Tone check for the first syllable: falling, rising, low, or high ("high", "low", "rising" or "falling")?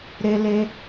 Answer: high